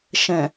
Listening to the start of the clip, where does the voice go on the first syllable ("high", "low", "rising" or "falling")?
low